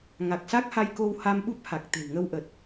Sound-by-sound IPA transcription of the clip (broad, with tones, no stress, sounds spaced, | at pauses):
ŋ a˨˩ k̚ s a˦˥ k̚ h a˧ j k o˧ w h a˧ m ɓ u˦˥ p̚ h a˨˩ k̚ t̪ e̤˨˩ w ŋ ə˧ w ʔ ə˨˩ t̚